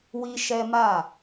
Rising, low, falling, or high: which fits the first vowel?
high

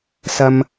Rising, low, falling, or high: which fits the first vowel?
high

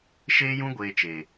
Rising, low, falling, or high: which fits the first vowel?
high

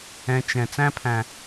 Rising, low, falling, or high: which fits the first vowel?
low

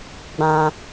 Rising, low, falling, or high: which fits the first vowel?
high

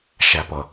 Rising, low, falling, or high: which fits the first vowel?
low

